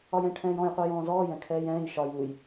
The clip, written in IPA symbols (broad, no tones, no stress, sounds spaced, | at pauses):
ɒ j ɛ̃ ʈʰ ɛ̃ː j ɔ̃ j qʷ ɜ j ɔ̃ː z ɔː j ɛ̃ kʰ ɛː j ɛ̃ː j ʃ ɒ j u j